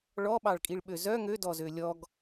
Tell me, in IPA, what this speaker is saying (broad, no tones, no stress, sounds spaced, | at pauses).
ɭ ɔ ɓ ɑ ɭ kʼ i ɭ ɓ ø z œ ŋ ø d ɔ z ø lʲ ɔ ɡ